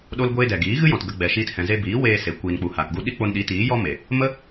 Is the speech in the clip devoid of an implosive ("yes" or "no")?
no